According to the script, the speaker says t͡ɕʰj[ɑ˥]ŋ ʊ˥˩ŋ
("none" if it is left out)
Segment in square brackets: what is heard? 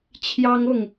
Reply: ɑ˥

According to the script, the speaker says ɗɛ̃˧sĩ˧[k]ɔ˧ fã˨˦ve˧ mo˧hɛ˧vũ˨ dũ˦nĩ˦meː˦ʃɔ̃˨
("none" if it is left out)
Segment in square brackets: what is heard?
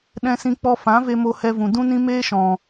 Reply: k͡p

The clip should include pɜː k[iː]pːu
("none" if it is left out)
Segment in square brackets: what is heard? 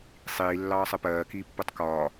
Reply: iː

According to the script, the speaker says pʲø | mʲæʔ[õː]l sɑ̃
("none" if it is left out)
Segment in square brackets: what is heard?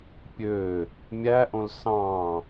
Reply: õ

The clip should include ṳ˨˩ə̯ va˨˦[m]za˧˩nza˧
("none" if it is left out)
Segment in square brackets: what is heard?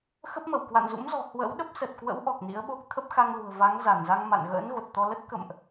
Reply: ŋ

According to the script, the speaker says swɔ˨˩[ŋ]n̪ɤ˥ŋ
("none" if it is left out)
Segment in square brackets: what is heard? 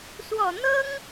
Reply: none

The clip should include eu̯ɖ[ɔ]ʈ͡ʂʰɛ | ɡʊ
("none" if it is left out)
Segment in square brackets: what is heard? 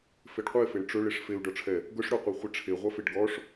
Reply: ɔ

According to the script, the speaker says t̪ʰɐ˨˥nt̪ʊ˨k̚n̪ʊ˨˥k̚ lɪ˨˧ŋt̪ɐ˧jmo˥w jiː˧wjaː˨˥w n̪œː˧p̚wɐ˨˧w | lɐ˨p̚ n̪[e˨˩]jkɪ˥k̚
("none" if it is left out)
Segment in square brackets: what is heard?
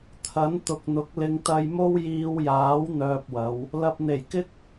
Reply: e˨˩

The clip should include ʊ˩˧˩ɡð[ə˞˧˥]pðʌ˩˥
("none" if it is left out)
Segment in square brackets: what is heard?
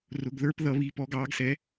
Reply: ə˞˧˥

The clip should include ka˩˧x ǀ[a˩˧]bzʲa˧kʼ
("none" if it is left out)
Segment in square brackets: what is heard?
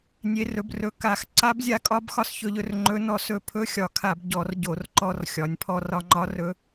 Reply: a˧˥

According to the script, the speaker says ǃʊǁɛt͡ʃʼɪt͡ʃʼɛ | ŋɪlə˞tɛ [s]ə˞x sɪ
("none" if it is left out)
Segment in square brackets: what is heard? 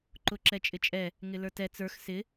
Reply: t͡s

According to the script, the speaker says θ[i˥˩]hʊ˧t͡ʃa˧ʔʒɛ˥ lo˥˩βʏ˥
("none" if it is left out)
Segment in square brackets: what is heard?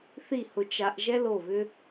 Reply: i˥˩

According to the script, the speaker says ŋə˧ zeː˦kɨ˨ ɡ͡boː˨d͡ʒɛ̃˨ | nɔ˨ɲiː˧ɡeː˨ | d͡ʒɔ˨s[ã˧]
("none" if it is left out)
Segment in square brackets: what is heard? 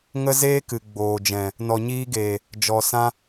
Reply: ã˧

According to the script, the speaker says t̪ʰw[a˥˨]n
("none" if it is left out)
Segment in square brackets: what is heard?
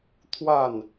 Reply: a˥˨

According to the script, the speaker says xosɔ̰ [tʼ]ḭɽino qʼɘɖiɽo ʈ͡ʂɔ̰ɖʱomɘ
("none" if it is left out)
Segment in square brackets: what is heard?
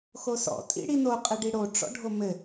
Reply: tʼ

